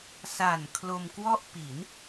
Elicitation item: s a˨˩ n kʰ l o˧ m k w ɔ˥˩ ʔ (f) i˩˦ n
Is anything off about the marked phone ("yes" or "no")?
yes